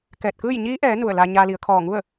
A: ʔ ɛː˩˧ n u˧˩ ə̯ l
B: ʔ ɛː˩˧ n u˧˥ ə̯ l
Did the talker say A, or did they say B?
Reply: A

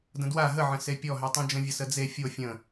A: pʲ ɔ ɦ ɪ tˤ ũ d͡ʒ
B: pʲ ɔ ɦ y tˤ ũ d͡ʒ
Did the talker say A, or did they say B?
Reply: B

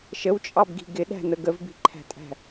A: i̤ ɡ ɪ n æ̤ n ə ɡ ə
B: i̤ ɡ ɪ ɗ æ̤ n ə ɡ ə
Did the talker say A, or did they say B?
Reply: B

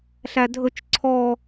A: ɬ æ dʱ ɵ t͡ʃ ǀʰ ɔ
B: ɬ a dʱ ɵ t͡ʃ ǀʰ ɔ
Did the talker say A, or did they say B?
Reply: A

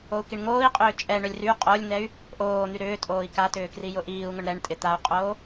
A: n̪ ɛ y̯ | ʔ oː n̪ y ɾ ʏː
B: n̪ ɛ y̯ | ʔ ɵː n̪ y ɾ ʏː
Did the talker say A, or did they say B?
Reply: A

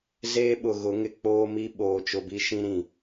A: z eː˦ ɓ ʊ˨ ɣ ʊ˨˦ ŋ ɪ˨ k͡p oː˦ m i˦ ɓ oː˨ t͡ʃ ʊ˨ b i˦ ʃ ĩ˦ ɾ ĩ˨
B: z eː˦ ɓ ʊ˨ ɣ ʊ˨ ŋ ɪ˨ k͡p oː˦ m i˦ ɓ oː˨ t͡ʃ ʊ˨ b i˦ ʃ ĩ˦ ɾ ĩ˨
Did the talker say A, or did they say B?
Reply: A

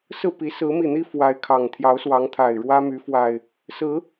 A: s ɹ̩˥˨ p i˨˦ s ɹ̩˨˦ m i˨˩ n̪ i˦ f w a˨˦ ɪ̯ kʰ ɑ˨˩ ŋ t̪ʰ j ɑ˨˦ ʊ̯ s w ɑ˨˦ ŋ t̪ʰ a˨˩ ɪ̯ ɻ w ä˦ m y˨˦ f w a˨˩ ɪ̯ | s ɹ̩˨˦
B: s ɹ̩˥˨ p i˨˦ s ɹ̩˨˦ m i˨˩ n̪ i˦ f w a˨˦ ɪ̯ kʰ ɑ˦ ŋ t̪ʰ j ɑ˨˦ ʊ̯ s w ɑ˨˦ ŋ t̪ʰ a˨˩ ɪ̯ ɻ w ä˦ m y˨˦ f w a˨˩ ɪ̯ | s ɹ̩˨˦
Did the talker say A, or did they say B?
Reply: A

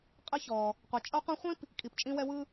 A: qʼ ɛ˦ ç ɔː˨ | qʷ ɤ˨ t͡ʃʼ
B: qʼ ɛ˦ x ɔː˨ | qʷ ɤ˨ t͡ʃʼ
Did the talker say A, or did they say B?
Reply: A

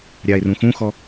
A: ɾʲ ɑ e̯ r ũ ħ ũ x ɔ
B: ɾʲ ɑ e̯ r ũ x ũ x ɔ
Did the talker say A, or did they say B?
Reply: B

